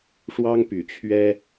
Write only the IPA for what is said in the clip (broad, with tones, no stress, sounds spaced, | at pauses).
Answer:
ʂ w ɑ˦ ŋ p y˨˦ t͡ɕʰ ɥ ɛ˦